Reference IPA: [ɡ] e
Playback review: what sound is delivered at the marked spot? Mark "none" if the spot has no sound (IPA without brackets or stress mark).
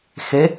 x